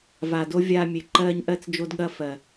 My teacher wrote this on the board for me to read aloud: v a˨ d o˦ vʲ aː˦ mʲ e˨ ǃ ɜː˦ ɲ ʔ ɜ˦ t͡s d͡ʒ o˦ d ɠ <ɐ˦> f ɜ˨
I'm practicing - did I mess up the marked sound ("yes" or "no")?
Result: no